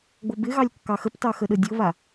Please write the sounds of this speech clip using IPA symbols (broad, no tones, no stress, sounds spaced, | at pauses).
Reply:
ɡ͡b o b ɪ ɣ ɑ lʲ kː ɑ x ə p t ɑ x ə ɗ ə dʲ o β a